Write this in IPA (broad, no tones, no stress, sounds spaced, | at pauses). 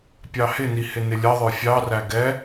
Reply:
pʲ ɑ h ɪ n i h ɪ n ɪ lʲ ʌ ðˤ ə˞ fʲ ɑ r æ ɡ ɛ